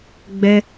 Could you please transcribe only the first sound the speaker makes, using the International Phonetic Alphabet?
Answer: ɡ͡b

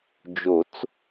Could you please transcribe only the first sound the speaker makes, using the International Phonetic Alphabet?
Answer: d͡ʒ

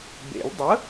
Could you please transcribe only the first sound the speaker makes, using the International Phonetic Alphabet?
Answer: b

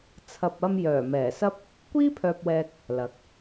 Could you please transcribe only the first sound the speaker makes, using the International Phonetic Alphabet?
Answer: t͡sʰ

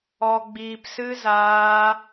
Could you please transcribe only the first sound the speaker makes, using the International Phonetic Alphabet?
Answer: ɔ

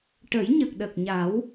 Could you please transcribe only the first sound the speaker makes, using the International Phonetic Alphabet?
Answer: ʈ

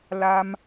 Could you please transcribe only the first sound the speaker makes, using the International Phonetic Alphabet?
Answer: l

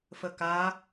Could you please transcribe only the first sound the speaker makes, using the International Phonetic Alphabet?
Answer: f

